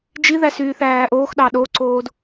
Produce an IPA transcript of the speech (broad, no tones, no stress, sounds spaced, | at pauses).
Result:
d͡ʒ i ð æ s yː θ æː ʔ oː x ɗ ɑ ɗ o ǀ oː d